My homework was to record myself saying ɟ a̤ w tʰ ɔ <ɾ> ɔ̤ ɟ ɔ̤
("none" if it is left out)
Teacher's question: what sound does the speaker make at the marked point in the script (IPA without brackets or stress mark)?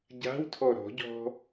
ɾ